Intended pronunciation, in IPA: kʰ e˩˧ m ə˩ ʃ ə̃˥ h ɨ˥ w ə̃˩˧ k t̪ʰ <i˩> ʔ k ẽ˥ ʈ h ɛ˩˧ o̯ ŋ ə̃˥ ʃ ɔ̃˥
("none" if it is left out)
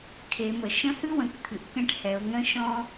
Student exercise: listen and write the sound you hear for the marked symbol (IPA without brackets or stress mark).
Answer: ɨ˩